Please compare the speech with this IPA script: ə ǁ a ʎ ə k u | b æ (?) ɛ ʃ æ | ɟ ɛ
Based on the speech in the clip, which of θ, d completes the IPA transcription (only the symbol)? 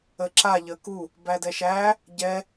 d